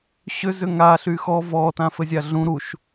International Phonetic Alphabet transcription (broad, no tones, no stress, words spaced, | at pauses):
ɕʏ zʏŋa ɬyxɔ vɔ tãfɘzʲaɮũ ɾuʃ